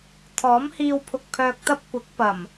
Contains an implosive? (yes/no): no